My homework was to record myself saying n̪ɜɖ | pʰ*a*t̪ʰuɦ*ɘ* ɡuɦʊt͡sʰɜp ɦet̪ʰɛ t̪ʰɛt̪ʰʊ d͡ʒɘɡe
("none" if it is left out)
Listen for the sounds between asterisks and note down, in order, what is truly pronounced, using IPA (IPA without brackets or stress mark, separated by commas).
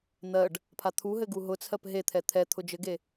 a, ɘ